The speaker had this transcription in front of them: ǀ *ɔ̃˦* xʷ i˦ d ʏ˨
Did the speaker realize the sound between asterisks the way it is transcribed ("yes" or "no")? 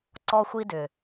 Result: no